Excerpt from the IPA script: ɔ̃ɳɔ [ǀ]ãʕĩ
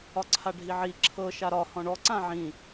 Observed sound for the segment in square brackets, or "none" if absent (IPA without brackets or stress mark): ǀ